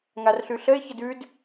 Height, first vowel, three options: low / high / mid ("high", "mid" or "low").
low